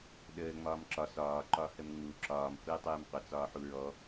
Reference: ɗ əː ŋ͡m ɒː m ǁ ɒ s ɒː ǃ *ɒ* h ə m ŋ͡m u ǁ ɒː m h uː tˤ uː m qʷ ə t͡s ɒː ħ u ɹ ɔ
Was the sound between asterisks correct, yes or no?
yes